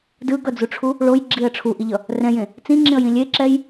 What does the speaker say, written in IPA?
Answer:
dɯɡʌd͡zuʈ͡ʂʰu | ɭojɡ͡ǁiə̯ ʈ͡ʂʰuʔiʎʌ | rɛ̃jẽ | t͡sĩŋ͡ǁĩə̯jĩ lʲeǁɛj

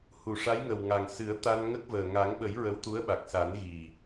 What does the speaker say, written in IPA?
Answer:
hu˨˩˨ʂa˧˥jŋə˨˩wŋa˨˩ŋ sɨ˨˩˦ə̯ t̪a˧n ŋə˦˥k̚vəː˨˩ ŋa˨˩˦ŋɓə˨˩˦j ɹə˧˥wt̪u˧˥ə̯ɓa˨˩k̚ sa˨˩˦nɣi˨˩

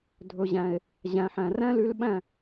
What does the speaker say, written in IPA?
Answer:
dʱɵ˩ʑæ̃˩e̯ | ʑæ̃˩ħæ̃˩ ræ̃˥ly˧l ɓæ̃˥˩

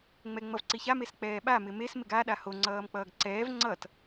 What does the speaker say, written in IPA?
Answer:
ŋ͡mɛŋ͡mʌvǀiça mesk͡pɛːɓa mɪmes mɪɡa ɗaho ŋ͡ǀʌːmk͡pʌːɡǀɛːv ŋ͡ǀʌt

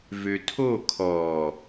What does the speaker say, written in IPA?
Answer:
vøtʰo kʰɔ

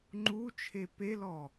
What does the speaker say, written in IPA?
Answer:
ŋ͡ǃu t͡ʃʰepelɔ

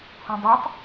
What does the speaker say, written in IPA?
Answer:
hũdˤɐtˤ

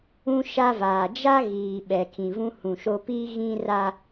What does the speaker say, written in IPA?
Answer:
ũ˦ ʃa˦vaː˨ d͡ʒa˦ ɣiː˨ ɓɛ˨ kʰĩ˨vũ˦hũ˨ʃo˦ piː˦ɣĩ˦ra˦

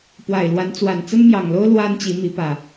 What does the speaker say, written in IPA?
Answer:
pwa˨˩ɪ̯lwa˨˦nt͡swa˨˩n t͡sə˦nmjɑ˨˩ŋlo˦ʊ̯ lwa˦n t͡ɕi˨˦mi˨˦pä˨˩

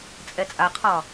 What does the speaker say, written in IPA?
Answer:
t͡sʼɛt͡sʼaqʰɒ

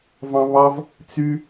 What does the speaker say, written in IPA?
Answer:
vɑ̃βɑv | t͡sy

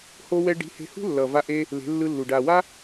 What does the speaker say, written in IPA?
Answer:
ho˧wɛ˧ɖi̤˨˦ he̤˧hṳ˦ lːʌ˨va˧ʔe˧ | le̤˨˦lːɯ˧lːu˨ ɖa˨wa˦

